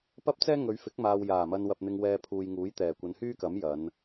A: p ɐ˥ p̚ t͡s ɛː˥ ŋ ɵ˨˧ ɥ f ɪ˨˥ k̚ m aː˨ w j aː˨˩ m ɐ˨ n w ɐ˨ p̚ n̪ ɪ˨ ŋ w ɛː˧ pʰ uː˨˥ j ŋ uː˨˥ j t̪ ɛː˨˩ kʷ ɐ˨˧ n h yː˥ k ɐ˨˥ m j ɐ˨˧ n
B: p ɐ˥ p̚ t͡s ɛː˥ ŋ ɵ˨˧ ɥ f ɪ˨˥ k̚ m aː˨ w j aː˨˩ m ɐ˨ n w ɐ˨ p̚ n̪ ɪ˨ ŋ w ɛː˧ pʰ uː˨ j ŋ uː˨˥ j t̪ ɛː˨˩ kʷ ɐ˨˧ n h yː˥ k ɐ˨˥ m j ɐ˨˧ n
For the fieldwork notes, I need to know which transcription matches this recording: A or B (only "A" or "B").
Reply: B